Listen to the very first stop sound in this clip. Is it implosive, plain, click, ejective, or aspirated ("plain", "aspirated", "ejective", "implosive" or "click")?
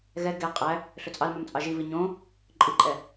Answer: plain